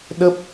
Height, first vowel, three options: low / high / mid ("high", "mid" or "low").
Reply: mid